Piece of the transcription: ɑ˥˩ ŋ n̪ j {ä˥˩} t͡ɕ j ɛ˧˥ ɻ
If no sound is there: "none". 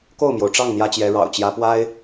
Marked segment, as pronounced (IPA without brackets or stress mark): ä˥